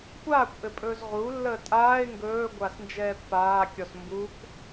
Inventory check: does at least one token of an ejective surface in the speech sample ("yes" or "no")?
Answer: yes